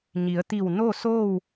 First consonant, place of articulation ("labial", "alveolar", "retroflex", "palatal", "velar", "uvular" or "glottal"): palatal